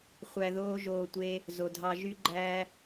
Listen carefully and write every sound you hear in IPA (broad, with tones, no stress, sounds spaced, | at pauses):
χʷ æ˧ ð oː˦ ʒ oː˧ tʷ e˦ | z o˨ dʱ ɑ˧ ʒ y˦ ɡ͡ǃ æː˦